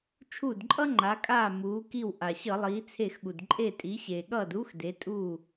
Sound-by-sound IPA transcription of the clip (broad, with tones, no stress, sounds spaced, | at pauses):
t͡ʃʰ uː˧˩ d ǃʼ ʌ˦ ŋ͡ǃ a˩˧ kʼ aː˧˩ m uː˩˧ k i˧˩ w ʔ a˩ ɕ ʌ˧˩˧ lˠ iː˩˧ t͡sʰ e˧˩ x ɠ u˩ d ǃʼ e˧˩ tʼ i˩˧ ɕ eː˩ ɠ ʌː˧˩ d uː˦ x d e˩˧ tʼ uː˧˩